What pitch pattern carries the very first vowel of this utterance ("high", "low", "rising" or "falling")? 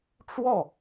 falling